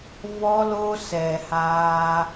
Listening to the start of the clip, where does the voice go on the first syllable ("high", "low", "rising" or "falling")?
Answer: high